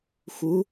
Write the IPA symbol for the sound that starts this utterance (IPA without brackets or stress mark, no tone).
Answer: x